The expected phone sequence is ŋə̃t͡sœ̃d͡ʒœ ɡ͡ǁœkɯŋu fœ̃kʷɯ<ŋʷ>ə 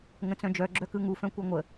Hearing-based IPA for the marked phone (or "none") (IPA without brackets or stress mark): ŋʷ